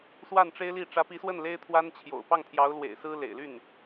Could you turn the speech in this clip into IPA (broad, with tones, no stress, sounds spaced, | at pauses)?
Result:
s w a˥˩ n ʈ͡ʂ e˥ ɪ̯ l i˥˩ ʈ͡ʂ ä˧˥ p i˧˥ s w ə˥˩ n l e˥ ɪ̯ t̪ʰ w a˥ n t͡ɕʰ j o̰˨˩ ʊ̯ p ɑ˥˩ ŋ t̪ʰ j ɑ˧˥ ʊ̯ l w ḛ˨˩ ɪ̯ s ɹ̩˥ l ḛ˨˩ ɪ̯ l y˥˩ n